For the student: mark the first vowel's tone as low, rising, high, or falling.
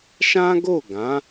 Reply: high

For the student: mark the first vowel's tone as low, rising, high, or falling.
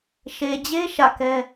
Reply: low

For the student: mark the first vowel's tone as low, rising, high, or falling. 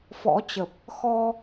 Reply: rising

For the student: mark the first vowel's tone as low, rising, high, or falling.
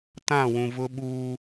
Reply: falling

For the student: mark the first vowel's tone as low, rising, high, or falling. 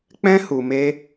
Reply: high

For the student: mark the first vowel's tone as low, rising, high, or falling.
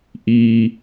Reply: low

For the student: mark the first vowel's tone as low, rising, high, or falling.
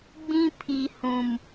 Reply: high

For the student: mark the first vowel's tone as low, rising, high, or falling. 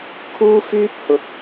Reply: high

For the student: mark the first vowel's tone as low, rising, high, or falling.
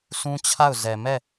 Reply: high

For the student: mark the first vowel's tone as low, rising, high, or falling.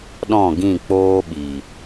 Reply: falling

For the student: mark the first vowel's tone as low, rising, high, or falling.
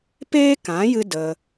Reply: high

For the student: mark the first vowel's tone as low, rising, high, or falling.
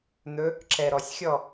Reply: rising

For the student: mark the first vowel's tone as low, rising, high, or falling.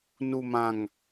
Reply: low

